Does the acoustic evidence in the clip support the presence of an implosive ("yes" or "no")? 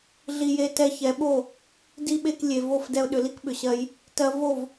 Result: yes